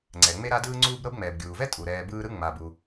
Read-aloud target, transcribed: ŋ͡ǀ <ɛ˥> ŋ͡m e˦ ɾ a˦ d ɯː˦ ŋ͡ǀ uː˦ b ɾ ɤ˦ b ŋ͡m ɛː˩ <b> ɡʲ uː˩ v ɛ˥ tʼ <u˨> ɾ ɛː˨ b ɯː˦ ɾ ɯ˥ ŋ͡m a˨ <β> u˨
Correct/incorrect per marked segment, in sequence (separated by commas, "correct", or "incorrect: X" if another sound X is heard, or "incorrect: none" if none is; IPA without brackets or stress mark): incorrect: ɛ˩, correct, incorrect: u˩, incorrect: b